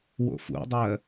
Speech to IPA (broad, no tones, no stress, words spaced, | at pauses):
wo̰fṵdˤɜ